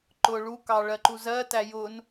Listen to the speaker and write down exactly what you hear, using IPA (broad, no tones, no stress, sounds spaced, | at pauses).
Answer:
ǃ ʊ ɭ u k ɑ ɭ ɜ ǃ u z ɜ t æ j ʊ n